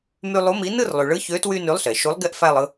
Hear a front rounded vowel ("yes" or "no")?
yes